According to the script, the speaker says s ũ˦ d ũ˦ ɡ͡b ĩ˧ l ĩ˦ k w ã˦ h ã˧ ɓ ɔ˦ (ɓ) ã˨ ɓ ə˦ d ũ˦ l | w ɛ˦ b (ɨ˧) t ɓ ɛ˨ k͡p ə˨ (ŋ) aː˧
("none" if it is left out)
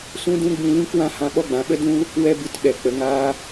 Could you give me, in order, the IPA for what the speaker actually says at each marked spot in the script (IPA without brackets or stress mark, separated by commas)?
ɡ͡b, ɨ˧, ŋ